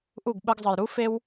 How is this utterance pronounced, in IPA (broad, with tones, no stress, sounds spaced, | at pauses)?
ʔ u˦˨ ɡ ɓ ɯ˧ ɡ zˤ ɯ˨ j ɾ u˦ f e˧ w